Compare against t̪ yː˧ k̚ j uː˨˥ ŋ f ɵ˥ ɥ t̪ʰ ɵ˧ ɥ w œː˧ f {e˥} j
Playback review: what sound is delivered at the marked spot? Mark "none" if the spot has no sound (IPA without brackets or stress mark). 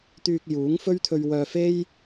e˥